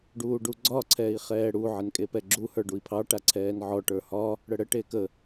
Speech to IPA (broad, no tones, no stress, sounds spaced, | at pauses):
ɖ uː ɖ u ɡ͡ǀ ɒ ǀʰ ɛː i̯ χ ɛː ɽ u ʕ ɪ n kʼ e p ɛ ɡ͡ǁ u h ə˞ ɖ u i̯ pʰ ɑ ʈ a ǀʰ ɛː n ʕ ɔ ʈ ə˞ h ɒ | ɽ ə ɽ ə ʈ e k ə